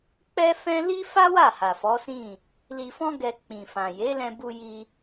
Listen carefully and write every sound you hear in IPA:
k͡p ɛ˦ f ɛ̃˦ l i˦ f a˦ w a˦˨ h a˨ f ɔ˨˦ s ĩ˦˨ | l i˧ f ɔ̃˦ ɡ ɛ˧ k͡p ĩ˨ f ã˨ j e˨˦ l ɛ̃˧ b u˧ j i˧

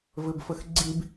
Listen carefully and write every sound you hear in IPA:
v ɘ b f ə x ɡ͡ǀ i b

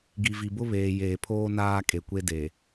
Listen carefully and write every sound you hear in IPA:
ɡ i˨ v i˨ b ʊ˦ β eː˨ j eː˨ pʰ oː˦ n aː˦ kʼ e˨ kʷ e˦ d e˨

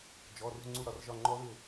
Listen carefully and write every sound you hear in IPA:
d͡ʒ ɔ˩˧˩ r ṳ˦˨ ŋ͡ǀ u˦˨ ɾ ɒ˩˧˩ r ʒ ɒ˦˨ ŋ͡ǃ ɔ˦˥ ð ɪ˦˨

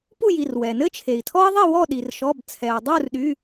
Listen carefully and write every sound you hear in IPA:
p u˥˨ j i˩˧˩ r w ɛ˩ n ɘ˥ t͡ʃʰ e˩ i̯ tʰ ɔ˥ i̯ ðˤ i˥˨ w ɔ˥˨ ɗ i˩ r ʃ ɔ˩˧˩ b t͡sʰ ɛ˩ u̯ dˤ u˥˨ r ɗ y˩˧˩

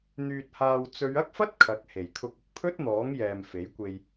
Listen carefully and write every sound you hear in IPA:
n̪ yː˧ t̚ h aː˧ w t͡s ɵ˨˧ ɥ ɐ˥ k̚ f ɐ˥ t̚ kʰ ɐ˨˥ k̚ h e˨˩ j kʰ ʊ˧ k̚ ʊ˨ k̚ pʰ ɵ˥ t̚ n̪ ɔː˨˥ ŋ j ɛː˨ m f e˨˥ j kʷ e˧ j

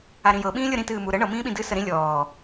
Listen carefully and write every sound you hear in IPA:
a ɾ ĩ j ɤ ɓ ĩː lʲ ɤ ɾ ĩ t ɨː m u ɾ ə ɳ ɤ m ĩː ɓ ĩ d ɨ s ə ɾ ĩ lʲ ɔː

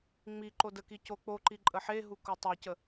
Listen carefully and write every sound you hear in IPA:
ŋ͡m i ǃ o d ə k i c o k͡p o ǃ i ǃʼ ə ħ e ɦ u k o tˤ a c ə

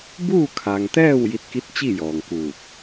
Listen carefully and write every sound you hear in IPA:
b uː˥˨ kʰ a˩ ŋ t̪ ɛː˥˨ w j i˧ t̚ k i˧˥ t̚ t͡ɕ i˥˨ j ɔː˩ ŋ k uː˧˩ t̚

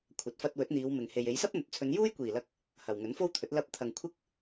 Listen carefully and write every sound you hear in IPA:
kʷʰ ɐ˨ t̚ f ɐ˧ t̚ w ɵ˨˥ t̚ n̪ iː˨˧ w m ɪ˨ ŋ h e˨ j e˨˧ j s ɐ˥ p̚ n̪ ɵ˨ t̚ t͡sʰ ɵ˨˧ n j uː˥ j kʷ iː˨˩ l ɐ˧ k̚ | h ɐ˨ w ŋ ɵ˨˥ n f o˥ w t̪ʰ ɵ˨˥ t̚ l ɐ˨˥ p̚ t̪ʰ ɐ˨ ŋ kʷʰ ɪ˥ k̚

